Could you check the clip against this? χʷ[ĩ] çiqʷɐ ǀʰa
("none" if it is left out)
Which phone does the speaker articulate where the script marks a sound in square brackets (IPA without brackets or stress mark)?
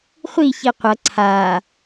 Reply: i